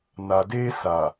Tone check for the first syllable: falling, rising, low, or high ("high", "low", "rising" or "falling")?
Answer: low